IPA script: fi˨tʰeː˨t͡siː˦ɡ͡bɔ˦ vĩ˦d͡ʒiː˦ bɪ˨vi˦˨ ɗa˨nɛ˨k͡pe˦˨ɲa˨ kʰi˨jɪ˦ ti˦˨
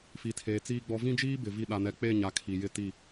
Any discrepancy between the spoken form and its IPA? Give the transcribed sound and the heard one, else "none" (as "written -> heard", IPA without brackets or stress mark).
none